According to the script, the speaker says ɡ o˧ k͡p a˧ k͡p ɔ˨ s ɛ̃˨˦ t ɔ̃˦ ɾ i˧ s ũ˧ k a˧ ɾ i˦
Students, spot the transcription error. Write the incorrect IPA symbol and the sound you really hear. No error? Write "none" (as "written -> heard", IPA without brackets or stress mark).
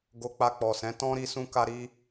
none